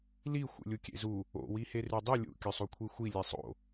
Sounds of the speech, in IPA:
l i xʷ ḛ lʲ u kʲ ḛ z u | o̰ w i h e r ʉ dˤ ɨ lʲ ṵ kʲ ɵ sˤ o kʷʰ i xʷ i lʲ e sˤ o̰

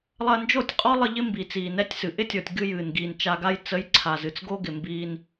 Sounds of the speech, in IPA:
lˠ ɐ˧ n d͡ʒ o˦˨ tʲ qʼ ɔ˦ lˠ ə˧ ʎ ɪ˦ m b i˨ t͡s iː˨ n ɛ˧ tʲ s ɨ˨ ʔ ɪ˦ tʲ ɔ˨ tʲ ɡ ɨ˧ j ɨː˨ n ɡ iː˨ n t͡ʃ a˧ ɡ a˦ j t͡s ə˨˦ j ǀʰ a˨ z ɨ˨ t͡s ɡ o˦ ɡ ɪ˨ m b iː˧ n

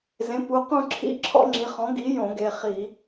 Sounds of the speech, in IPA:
z ẽ˩˥ p u˩˧˩ q ũ˧˩ ǁʰ ḭ˧˩ ǁʰ ɔ̰˦ ŋ͡ǁ i˩˧˩ χ ɔ̃˩˥ ɡ i˩˥ j õ˧˩˧ ɡ e˩˧˩ χ i˧˩˧

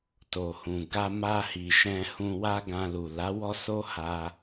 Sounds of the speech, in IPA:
t o˨ h ũ˨ ɡ a˧ m a˧ h i˨ ʃ ɛ̃˧ h ũ˧ w a˦ ɡ ã˧ l u˨ l a˨˦ w ɔ˦ s o˦ h a˧

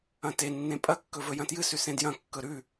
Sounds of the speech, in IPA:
ɐ̃ t e nː ẽ pʼ ɐ kː ɵ v ɵ j ɐ̃ t j ɨ s ʉ s ẽ d j ɐ̃ kː ɵ ɾ ʉ

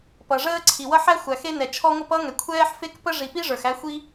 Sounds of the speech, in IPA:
p ʌ˩ ʐ əː˥ ǀʰ i˩ w ʌ˥ ħ æ˥ xʷ æ˩ x e˥ n ɛ˩ t͡ʃʰ ɔ˥ ŋʷ ʌ˥ p ʌ˥ ŋ ɛ˩ kʷʰ ɛː˥ ħ f e˥ k p ə˥ ʐ i˩ p i˥ ʐ ə˞˩ x æ˥ xʷ i˥

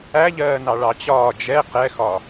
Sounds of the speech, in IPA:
æ ʎ ɜː n ɑ ɭ ɑ t͡ɕ ɒː d͡ʒ ɛ q ɛ x ɒ

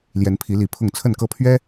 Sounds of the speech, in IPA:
l j ɛ˨˦ n pʰ i˨˦ l i˨˦ pʰ ʊ˥˨ ŋ t͡sʰ ə˥˨ n k ɤ˦ pʰ ɥ ɛ˦

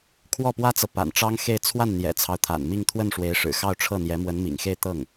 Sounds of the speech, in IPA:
kʰ w ɔ˥˩ p w ä˥ t͡s ɤ˨ p a̰˨˩ n ʈ͡ʂ ɑ˥ ŋ x e˥˧ ɪ̯ t͡sʰ w a˥˩ n n̪ j ɛ̰˨˩ t͡sʰ ɑ˦ ʊ̯ t̪ʰ a̰˨˩ n m i˥˧ ŋ t̪ʰ w ə˥˩ n ʂ w e˧˥ ɪ̯ ʂ ɻ̩˨˩ x ɑ˥˧ ʊ̯ ʈ͡ʂʰ ɤ˥˩ n̪ j ɛ˧˥ m w ə˧˥ n m ḭ˨˩ ŋ x e˥˧ ɪ̯ t̪ ɤ˥˩ ŋ

